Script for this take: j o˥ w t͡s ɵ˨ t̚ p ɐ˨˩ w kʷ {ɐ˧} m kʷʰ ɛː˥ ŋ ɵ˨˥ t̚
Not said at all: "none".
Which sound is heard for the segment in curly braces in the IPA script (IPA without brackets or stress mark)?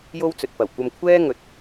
ɐ˧